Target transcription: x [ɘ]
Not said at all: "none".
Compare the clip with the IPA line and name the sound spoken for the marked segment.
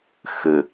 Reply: ɘ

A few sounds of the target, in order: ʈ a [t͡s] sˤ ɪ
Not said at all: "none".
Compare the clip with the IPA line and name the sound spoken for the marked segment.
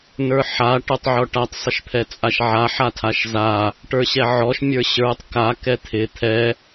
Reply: tˤ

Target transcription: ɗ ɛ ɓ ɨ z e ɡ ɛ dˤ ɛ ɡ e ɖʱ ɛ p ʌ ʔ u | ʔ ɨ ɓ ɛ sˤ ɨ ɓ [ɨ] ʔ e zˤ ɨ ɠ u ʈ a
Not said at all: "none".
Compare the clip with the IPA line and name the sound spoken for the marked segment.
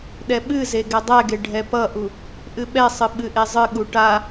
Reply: ɨ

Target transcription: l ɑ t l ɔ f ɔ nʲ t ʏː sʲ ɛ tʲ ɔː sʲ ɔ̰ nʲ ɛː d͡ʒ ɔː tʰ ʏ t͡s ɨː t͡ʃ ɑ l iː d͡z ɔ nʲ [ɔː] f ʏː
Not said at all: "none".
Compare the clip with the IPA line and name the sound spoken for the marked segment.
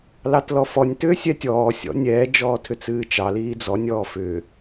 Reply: ɔː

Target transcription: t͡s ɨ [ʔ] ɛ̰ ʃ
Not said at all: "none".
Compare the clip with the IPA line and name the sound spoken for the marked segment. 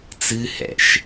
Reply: h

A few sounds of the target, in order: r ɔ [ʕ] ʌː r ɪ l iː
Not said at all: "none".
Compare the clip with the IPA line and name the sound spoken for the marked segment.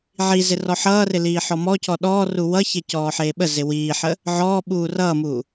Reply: ħ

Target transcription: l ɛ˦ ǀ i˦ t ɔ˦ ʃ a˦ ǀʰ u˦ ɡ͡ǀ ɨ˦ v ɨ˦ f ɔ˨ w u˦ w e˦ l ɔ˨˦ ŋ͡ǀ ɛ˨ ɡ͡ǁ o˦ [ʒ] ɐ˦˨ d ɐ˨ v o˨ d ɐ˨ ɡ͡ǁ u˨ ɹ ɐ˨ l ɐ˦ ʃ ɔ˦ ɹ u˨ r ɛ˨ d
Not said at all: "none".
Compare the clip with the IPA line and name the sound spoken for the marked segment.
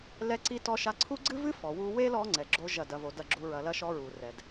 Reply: ʒ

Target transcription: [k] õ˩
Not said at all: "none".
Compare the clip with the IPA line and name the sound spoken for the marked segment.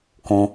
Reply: k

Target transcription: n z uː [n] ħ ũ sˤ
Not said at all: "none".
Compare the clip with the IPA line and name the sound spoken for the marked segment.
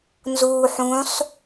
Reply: none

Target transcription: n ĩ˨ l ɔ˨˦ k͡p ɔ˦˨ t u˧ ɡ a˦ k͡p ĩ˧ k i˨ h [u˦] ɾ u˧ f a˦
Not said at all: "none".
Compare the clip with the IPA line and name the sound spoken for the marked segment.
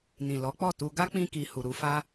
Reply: u˨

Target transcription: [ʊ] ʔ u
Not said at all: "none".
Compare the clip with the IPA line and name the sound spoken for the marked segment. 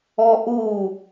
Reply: ɔ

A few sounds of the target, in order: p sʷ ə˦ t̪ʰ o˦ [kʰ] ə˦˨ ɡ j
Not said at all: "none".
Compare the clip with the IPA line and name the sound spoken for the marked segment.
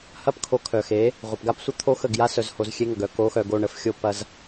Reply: x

